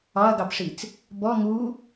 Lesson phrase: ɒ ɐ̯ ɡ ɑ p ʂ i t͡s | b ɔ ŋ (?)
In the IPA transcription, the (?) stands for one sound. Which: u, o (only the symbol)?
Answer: u